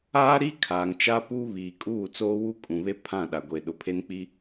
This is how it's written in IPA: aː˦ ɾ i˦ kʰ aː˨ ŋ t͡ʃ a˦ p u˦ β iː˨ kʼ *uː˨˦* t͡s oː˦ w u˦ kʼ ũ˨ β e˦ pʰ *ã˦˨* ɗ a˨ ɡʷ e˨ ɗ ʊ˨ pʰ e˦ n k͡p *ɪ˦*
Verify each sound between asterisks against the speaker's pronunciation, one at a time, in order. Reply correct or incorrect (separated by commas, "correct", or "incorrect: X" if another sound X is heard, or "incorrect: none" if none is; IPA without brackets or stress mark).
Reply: incorrect: uː˦˨, correct, incorrect: i˦